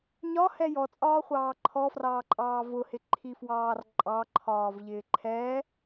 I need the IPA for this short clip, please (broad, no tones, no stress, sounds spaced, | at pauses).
ɲ ɒ h ɛ j ɔ t͡sʼ ɒː χʷ ɑː ǃʰ ɔ f r ɑː ǃʼ ɑː v ʊ h ɪ ǃʰ i f w ɑː r ǃʼ ɑ ǃʰ ɒː v ʎ ɪː ǃʰ ɛ